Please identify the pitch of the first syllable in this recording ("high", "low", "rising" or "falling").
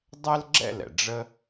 high